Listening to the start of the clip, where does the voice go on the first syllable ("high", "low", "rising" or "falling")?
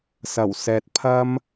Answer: low